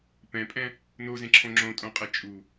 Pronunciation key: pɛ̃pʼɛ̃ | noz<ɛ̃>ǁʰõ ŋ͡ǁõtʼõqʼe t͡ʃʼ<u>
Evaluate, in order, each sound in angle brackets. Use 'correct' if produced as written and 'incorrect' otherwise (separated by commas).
incorrect, correct